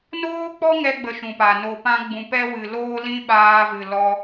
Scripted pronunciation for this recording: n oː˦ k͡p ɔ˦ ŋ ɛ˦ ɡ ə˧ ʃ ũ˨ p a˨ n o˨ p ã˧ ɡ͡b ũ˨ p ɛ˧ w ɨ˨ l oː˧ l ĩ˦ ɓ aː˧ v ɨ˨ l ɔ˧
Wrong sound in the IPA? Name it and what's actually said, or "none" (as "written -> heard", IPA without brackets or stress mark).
ɡ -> ɡ͡b